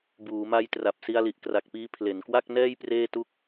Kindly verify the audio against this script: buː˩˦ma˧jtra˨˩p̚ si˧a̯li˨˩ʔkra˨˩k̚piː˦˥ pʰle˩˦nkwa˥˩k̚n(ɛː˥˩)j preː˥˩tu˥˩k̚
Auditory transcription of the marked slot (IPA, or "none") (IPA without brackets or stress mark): ɛː˥˩